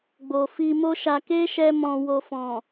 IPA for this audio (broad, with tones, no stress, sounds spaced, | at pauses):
ɡ͡b o˨ f i˧ m o˦ ʃ a˧ k e˦ ʃ ɛ˦ m ɔ̃˧ w o˧ f ɔ̃˨